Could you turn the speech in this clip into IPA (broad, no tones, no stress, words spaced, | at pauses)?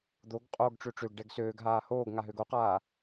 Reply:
d̪oɡ qʼoːɡʈ͡ʂøʈ͡ʂøɡ ɖɛɡsøːɡ ɦaːhoːɡ ŋaɦøɡoqaː